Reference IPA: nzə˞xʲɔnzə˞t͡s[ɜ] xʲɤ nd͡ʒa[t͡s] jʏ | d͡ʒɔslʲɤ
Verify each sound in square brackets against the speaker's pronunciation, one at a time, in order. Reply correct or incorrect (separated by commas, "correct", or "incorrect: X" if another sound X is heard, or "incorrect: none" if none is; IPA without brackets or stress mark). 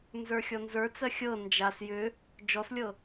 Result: correct, incorrect: s